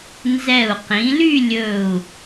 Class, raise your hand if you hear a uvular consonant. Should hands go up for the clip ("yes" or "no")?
yes